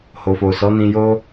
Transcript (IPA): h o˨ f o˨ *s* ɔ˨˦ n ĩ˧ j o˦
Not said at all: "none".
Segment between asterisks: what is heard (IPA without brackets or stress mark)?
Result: s